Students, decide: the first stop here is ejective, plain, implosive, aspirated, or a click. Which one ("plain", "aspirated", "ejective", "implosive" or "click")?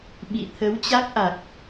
implosive